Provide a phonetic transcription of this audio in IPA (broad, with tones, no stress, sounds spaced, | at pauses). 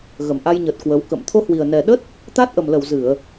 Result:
ɣ ə˨˩ m ʔ a˧ j ɲ ə˨˩ t̚ k w ə˨˦ w k ə̰˧˨ m t̪ʰ o˧ h w i˨˩ ə̯ n ɛ˨˩ ɗ ə˦˥ t̚ | t̪ a˦˥ t̚ ʔ ə˨˩ m l ə˧˩ w z ɨ˧˩˨ ə̯